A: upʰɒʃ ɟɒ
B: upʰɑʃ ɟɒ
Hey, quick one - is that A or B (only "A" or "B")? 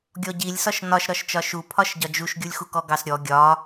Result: A